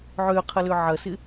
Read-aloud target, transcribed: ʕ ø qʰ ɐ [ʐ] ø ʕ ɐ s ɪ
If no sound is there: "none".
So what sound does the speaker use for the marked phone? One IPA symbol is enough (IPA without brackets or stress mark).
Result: l